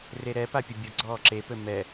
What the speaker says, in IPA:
r e ɾ ɛ p a pʲ ə bʲ ʊ ɡ͡ǀ ɔː ǁ e p ɘ m ɛ

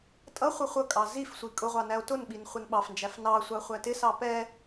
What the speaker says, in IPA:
tʼ ʌ χʷ ʌ χʷ ʌ kʼ ɑ z i f sʷ i kʼ ʊ ʁʷ ɑ n æ o̯ t ʊ n ɓ i n χʷ ɪ n ɓ ɑ f n d͡ʒ æ f n ɑ sʷ ɑ χʷ æ t ɪ s ɑ p ɛ

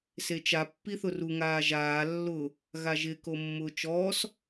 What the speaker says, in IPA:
s e t͡ʃ a pː i θ ʊ r u ŋ aː ʒ aː lː ʊ | ɣ a ʒ ɪ k o mː ʊː t͡ʃ ɔː s

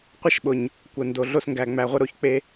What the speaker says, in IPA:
qʷ ɐ˦ ʃ ɓ ʊ˨ ɲ | kʷ ə˨ n d o˨ ɮ o˧ s ŋ ɡ æ˨ ŋ͡m æ˨ ʁʷ ə˧ ɾ o˧ ç k͡p e˧

